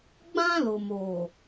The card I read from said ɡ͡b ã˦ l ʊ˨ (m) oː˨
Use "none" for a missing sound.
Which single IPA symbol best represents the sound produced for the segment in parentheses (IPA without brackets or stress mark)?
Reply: m